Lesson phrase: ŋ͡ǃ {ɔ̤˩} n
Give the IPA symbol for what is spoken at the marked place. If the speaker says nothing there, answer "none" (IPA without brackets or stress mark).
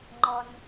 ɔ˩